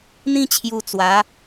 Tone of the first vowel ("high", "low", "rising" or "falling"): high